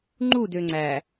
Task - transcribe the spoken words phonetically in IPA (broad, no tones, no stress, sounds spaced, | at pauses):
ŋ͡ǃ u d ø ŋ͡ǀ æ